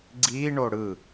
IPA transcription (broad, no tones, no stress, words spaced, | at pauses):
ɡ͡ǀiːɳo ɽɯ